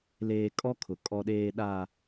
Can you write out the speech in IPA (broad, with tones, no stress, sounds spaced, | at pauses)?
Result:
l eː˨ kʼ ɔ˦ kʰ ʊ˨ kʼ ɔ˨ ɗ eː˨ ɗ a˨